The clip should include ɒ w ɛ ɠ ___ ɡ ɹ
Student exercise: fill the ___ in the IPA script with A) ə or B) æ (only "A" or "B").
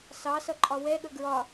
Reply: A